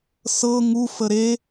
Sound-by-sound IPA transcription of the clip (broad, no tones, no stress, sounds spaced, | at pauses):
s ɤ ŋ u f ə ɾ e